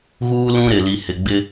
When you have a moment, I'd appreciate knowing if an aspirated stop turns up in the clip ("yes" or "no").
no